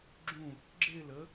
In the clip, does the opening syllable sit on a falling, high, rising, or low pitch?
falling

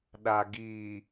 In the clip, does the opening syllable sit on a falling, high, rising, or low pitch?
low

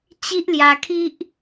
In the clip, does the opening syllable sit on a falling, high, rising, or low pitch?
high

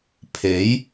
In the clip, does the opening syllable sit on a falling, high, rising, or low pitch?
rising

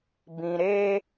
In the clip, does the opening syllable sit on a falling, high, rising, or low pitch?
low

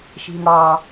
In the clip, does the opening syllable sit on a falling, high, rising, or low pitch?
low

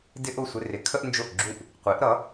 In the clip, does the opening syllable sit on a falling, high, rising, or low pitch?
high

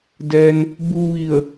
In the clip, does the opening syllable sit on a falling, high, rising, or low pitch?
low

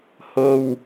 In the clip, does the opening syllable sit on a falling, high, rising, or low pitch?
low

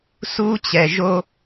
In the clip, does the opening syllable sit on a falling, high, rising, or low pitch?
high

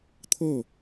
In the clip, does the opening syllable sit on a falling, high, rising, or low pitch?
falling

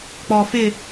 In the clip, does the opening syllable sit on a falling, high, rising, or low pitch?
low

